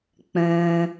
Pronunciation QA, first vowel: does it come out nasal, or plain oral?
nasal